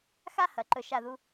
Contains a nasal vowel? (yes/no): no